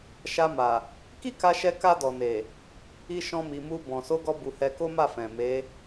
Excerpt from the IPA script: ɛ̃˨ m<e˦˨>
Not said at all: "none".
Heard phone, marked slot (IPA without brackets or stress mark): e˨˦